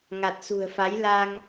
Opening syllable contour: low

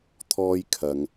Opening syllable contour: high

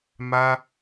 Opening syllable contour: high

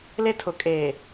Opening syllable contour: high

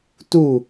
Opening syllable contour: falling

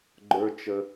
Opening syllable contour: high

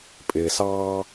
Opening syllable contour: low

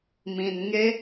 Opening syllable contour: low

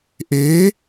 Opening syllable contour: rising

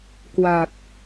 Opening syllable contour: low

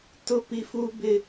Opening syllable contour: high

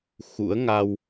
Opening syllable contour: rising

